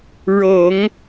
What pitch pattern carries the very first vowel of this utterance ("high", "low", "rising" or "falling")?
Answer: low